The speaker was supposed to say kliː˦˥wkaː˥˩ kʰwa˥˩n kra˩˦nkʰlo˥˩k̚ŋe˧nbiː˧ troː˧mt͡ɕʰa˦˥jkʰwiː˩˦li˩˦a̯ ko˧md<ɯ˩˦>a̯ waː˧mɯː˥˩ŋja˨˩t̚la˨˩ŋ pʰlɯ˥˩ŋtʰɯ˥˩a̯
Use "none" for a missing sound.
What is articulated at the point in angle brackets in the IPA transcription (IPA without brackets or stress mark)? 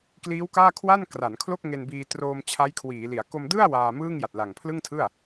ɯ˥˩